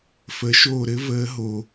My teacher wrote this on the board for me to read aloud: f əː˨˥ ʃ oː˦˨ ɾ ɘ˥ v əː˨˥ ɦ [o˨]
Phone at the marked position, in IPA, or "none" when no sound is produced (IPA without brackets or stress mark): o˨